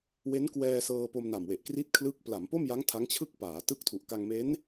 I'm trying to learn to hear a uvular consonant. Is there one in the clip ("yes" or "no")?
no